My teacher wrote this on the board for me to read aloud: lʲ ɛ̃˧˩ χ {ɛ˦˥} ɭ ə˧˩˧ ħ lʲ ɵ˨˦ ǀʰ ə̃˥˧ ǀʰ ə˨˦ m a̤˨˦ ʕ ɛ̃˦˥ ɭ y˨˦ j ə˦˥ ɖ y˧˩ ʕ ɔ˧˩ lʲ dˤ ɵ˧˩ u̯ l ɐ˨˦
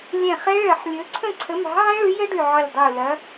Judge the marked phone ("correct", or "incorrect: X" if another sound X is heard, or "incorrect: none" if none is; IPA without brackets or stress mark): correct